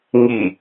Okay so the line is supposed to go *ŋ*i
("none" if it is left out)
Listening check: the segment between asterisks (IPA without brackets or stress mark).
ŋ